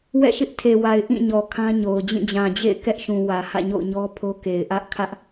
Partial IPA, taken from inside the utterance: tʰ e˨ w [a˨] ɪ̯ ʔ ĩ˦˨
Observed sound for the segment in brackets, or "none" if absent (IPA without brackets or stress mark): a˨